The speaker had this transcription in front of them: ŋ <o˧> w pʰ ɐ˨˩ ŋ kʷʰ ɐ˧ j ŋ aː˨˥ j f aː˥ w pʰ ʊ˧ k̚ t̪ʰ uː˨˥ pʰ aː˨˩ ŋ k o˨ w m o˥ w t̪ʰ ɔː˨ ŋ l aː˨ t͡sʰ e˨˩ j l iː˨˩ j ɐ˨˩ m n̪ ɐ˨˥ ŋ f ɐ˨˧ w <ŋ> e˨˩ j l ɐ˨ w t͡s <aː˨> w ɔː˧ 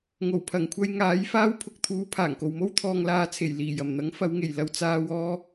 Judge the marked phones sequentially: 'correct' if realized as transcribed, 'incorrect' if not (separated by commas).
incorrect, correct, correct